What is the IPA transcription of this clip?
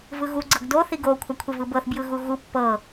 vɯɣu ɡ͡ǀɤɡdo θiɡo kʷʰakʷʰevɯbɤθ bjɯɣuɣu pːɤ

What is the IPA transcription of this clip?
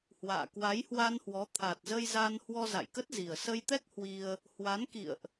hwa̰ː˧˨ kwa˨˦jhwa˧nhwɔ˨˦ t̪ʰa˨˩t̚zə˧jza˧n hwɔ˧za̰˧˨jkə˦˥t̚zi˨˩ə̯ sə˧jt̪ɛ˦˥k̚ hwi˧ə̯ | hwa˨˦nkḭ˧˨ə̯ʔ

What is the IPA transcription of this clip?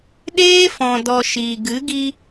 ɗeː˦fɔ̃˨dɔ˨ ʃiː˨ ɡɨ˨˦ɡi˧

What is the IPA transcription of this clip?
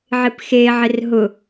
ʕɪpxe ʕɪrɦʊ

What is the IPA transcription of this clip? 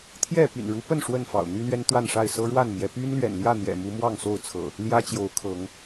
t̪ʰjɛ˥˨ py̰˨˩nɻu˨˦pə˥˨n ʂwə˥˨nfɑ̰˨˩ʊ̯n̪y˦ lɥɛ˦nt̪wa˥˨nʂa˥˨ɪ̯ sɤ˦ɻwa˥˨nmjɛ˨˦ py˦nlɥɛ̰˨˩n ljä˥˨n̪jɛ̰˨˩mu˨˦ mwɑ˥˨ŋso˥˨ʊ̯ t͡sʰɤ̰˨˩ | ljä˦t͡ɕjo˨˦ʊ̯kʰɤ˨˦ŋ

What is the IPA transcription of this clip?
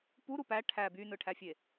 puɾu pæ ʈʰæ bynɯʈʰæfʲe

